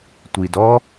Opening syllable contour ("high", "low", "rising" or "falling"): low